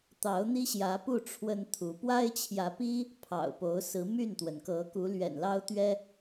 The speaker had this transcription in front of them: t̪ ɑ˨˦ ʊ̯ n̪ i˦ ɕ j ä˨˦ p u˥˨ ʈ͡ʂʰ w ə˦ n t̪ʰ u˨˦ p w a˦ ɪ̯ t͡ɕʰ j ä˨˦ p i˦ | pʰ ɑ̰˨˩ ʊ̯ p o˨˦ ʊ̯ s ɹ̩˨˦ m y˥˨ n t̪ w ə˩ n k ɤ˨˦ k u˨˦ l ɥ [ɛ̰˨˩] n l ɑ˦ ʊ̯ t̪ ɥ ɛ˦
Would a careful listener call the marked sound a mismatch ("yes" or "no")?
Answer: no